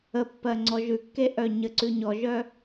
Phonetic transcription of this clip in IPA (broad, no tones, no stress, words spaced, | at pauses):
ə pːɜŋ͡ǀɔʒʉkːe ʔœɲəǀʉ ɲɔʒœ